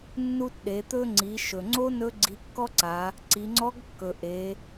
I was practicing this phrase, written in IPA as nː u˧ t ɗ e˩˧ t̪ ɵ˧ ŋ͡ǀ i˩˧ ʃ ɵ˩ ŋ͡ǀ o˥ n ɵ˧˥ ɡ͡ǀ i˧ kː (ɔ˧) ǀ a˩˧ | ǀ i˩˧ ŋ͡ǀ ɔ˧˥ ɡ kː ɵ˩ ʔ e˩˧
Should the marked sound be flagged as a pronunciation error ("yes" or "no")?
yes